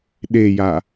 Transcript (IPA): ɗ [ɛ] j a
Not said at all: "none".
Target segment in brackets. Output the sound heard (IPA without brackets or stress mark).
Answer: e